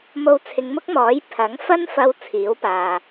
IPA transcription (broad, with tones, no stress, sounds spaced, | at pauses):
m o˧ w t͡sʰ ɪ˨˧ ŋ m ʊ˥ k̚ m ɔː˨˥ j pʰ ɐ˨˥ ŋ f ɐ˥ n f ɐ˧ w t͡sʰ iː˨˥ w p aː˨